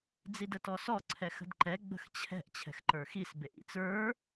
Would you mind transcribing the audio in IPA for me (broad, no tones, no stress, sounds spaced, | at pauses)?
d͡z i d ə t ɔ s ɔ ǀʰ ɛ x ə̤ d ǃ ɛ ɡ͡b ə̤ x t͡ɕʰ ɛ̤ ʔ t͡ɕʰ ɛ̤ x ǃ ə˞ x i s b e ʔ ḭ t͡s ə˞